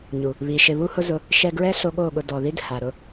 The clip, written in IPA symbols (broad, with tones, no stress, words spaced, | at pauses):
ɲu˨ | βi˨ʃɪ˧ βu˦hʊ˦zʊ˧ | ʃɛ˧ɡɹɛ˦ɬo˧ ɠo˦˨ɠʊ˧ dɔ˨ði˦d ha˨ɾʊ˦